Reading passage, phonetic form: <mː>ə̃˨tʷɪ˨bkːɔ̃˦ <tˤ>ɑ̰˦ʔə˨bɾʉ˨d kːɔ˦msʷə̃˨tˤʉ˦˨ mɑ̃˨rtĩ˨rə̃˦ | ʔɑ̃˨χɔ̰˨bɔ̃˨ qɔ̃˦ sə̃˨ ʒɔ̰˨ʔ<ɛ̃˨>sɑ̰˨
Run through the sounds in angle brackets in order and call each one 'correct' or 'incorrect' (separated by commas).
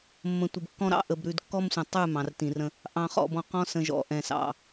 correct, incorrect, correct